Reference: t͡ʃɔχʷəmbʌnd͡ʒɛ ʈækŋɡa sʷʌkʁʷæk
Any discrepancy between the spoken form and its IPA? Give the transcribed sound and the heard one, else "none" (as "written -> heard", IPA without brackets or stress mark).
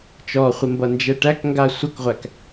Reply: none